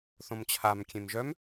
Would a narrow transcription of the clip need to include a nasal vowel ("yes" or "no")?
yes